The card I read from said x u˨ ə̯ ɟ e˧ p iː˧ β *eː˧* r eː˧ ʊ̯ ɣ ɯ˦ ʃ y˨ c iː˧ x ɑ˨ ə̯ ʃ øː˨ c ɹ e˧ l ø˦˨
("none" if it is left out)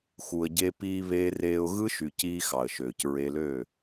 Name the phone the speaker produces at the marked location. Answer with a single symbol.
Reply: eː˧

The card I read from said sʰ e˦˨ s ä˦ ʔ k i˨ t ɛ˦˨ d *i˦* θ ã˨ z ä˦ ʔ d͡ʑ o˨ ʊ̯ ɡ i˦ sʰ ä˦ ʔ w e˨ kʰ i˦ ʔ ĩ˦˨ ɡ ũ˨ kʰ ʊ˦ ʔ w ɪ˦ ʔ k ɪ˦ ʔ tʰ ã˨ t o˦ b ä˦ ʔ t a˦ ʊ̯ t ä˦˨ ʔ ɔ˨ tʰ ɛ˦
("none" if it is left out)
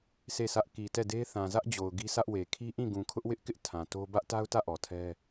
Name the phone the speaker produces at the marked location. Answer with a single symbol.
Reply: e˦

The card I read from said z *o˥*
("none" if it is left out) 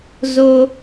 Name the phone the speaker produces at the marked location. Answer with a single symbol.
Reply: o˥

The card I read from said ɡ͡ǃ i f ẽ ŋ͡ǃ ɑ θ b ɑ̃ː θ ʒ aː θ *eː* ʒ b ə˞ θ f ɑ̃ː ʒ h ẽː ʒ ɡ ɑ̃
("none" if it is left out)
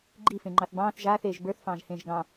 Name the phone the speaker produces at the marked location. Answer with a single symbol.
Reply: eː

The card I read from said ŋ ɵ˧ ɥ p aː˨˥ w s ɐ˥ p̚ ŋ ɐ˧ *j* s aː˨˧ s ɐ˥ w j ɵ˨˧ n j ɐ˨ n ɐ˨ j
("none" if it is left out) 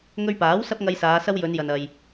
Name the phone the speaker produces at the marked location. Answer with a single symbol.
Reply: j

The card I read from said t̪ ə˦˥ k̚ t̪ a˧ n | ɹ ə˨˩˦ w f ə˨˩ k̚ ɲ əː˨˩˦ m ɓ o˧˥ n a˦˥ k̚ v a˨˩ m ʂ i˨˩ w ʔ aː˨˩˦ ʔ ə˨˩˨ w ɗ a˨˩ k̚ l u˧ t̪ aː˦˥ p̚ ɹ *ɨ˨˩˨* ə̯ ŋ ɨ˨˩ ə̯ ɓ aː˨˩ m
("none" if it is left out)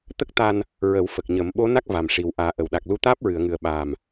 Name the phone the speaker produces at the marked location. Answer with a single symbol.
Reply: ɨ˨˩˨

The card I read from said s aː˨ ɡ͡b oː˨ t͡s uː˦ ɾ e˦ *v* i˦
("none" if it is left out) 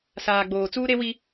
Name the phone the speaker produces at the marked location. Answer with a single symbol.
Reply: w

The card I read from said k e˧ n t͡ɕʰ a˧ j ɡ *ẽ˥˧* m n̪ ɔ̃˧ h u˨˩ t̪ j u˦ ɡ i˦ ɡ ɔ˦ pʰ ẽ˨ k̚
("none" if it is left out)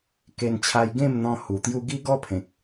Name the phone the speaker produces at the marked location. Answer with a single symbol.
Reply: ẽ˥˧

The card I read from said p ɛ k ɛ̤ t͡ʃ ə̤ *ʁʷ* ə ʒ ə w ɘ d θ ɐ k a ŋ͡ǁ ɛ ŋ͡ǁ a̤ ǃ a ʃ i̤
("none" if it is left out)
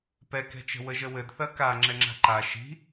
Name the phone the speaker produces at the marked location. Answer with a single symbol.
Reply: w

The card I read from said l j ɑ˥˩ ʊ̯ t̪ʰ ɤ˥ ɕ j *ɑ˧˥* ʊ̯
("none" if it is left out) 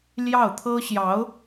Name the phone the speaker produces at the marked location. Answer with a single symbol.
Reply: ɑ˧˥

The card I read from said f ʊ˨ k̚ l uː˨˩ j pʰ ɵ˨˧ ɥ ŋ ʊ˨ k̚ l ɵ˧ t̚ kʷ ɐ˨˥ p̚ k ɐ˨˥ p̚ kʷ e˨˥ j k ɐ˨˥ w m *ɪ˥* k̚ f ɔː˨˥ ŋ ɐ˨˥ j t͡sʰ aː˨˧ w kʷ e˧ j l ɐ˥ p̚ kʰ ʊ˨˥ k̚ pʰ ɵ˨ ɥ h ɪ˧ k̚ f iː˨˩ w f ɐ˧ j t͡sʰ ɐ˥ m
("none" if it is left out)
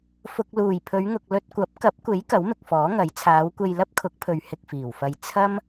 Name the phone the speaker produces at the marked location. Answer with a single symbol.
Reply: ɪ˨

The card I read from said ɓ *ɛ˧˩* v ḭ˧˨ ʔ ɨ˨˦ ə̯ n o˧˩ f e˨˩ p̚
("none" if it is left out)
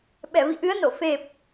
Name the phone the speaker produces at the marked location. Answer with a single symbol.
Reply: ɛ˧˩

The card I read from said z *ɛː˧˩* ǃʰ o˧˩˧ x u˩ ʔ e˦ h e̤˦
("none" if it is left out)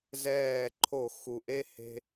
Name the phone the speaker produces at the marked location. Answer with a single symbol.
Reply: ɛː˧˩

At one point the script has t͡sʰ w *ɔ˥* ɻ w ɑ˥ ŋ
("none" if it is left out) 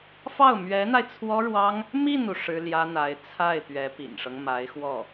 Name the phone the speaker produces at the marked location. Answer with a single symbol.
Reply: ɔ˥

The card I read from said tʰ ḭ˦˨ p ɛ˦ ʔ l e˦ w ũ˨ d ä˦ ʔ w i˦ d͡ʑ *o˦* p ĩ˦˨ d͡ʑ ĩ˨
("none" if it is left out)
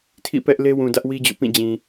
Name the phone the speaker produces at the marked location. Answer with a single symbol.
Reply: o̰˦˨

